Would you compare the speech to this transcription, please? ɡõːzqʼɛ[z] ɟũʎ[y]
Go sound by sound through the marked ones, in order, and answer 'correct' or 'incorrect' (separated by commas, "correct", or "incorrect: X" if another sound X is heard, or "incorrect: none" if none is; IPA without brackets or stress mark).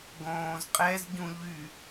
correct, correct